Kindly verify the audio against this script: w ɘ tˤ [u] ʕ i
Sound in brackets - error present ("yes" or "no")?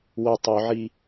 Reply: no